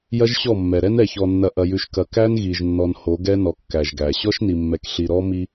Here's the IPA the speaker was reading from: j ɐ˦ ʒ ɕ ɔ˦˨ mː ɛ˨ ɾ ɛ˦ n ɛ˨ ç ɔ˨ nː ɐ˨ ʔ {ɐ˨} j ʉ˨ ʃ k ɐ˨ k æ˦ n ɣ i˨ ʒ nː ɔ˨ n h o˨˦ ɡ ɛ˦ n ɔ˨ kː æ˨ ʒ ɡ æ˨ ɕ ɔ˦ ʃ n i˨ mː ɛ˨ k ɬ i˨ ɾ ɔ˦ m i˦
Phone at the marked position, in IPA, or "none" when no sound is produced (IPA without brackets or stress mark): ɐ˨